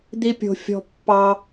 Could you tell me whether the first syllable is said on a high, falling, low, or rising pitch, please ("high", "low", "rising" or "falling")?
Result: high